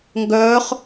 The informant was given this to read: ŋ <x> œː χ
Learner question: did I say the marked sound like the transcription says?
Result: no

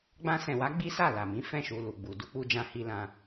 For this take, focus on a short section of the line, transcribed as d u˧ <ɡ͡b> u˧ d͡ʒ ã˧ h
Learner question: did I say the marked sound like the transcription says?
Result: no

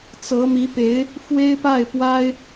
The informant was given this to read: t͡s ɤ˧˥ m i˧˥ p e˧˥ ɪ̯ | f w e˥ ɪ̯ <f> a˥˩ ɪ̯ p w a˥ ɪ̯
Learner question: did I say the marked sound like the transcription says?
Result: no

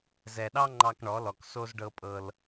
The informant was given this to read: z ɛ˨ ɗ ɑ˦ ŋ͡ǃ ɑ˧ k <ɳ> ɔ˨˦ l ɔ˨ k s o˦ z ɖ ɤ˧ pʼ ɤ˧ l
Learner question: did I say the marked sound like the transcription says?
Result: yes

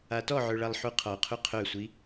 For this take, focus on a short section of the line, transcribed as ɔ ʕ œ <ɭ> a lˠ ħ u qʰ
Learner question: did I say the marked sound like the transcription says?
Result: yes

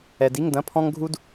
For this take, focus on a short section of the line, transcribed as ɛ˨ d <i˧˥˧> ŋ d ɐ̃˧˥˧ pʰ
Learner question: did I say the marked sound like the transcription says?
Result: yes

